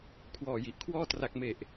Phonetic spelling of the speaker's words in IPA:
kʰwɔː˨˩ji˨˩ʔkʰwɔː˥˩ tra˨˩k̚me˨˩ʔ

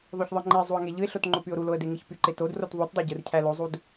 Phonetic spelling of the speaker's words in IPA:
ðˤoçðˤɯŋ͡ǃezˤuə̯ ŋeʎɯɪ̯ɬot ŋ͡ǃopyʊ̯ɾuloə̯ deŋɯçpyǃe tod rotðˤutdˤo ɟɯrcʰælozˤud

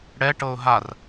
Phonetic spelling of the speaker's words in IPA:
ɽɛ ʈɤʊ̯ɦar

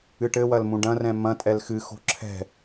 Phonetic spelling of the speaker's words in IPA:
ɨʈɘwɐl mũɖɐ̃rɛ̃ mɐ̃ tʼɛlxɨ xo̤ǁʰɛ̤

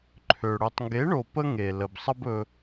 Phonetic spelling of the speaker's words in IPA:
ǃʰø˨ ɽø˨tˤŋɡe˨˦ɳo˨ pə˦ ŋe˨ lə˨bsˤə˦bɵ˧

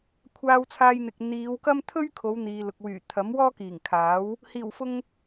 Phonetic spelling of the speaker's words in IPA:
kʷʰaː˧wt͡sʰaː˧jn̪ɪ˨k̚ n̪iː˨˧wkɐ˥m t̪ʰɵ˥ɥkʰo˨˧w n̪iː˨lʊ˨k̚wyː˨˩ t̪ʰɐ˨˥m wɔː˥kiː˨˩ŋ kʰaː˨˥w | hiː˨˩wfʊ˧ŋ

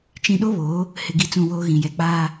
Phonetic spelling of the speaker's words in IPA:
t͡ʃĩ˨ɗo˦ βoː˨˦ | hɪ˨ɡi˨ t͡sũ˦˨woː˦ɣĩ˨jɛ˨ k͡paː˦

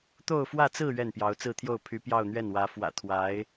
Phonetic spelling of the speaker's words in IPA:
t̪o˥˧ʊ̯fwä˥˧t͡sɹ̩˥˧ ɥɛ˥˩npjɑ˧˥ʊ̯t͡sɹ̩˥˧t̪ʰjo˥˩ʊ̯ pʰy˧˥ pjɑ˥˧ʊ̯n̪ɥɛ˥˩nwä˧˥ fwä̰˨˩t̪ʰwa˧˥ɪ̯

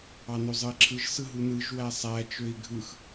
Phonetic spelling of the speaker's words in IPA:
ɑnozˤɯi̯ǁʰɯʒ sɯɦunɯʒ wæsˤæ t͡ʃøi̯ɡʱɯx

